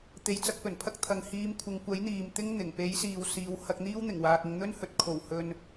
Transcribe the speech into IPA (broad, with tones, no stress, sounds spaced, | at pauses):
t̪ e˨˧ j t͡s ɐ˧ k̚ p ɵ˨˩ n pʰ ɐ˥ k̚ t̪ʰ ɐ˨ ŋ h iː˨˥ m kʷʰ ɪ˨˧ ŋ kʷ ɐ˨˥ j n̪ iː˨ m t̪ ɪ˥ ŋ n̪ ɪ˨˩ ŋ p e˨˥ j s iː˨ w s iː˨˧ w h ɐ˧ k̚ n̪ iː˥ w n̪ ɪ˨˩ ŋ w aː˨ k̚ ɪ˨˧ ŋ n̪ ɵ˥ n h ɵ˨ t̚ kʰ o˨˩ w h ɵ˨ n